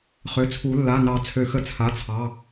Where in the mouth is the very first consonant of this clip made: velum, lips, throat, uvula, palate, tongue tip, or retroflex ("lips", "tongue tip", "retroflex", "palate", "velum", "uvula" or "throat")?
uvula